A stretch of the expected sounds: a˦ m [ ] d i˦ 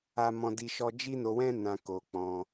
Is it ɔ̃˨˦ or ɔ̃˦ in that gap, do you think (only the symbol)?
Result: ɔ̃˦